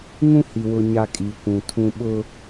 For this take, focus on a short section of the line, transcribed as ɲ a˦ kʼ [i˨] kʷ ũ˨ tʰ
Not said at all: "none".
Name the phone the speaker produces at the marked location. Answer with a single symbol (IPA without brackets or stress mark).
i˨